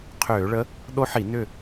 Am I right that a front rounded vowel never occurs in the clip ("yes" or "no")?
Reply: no